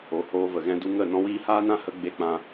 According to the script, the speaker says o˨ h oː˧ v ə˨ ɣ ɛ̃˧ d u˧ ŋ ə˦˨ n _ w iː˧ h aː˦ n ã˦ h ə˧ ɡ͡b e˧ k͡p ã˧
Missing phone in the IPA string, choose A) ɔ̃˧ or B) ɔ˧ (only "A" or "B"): A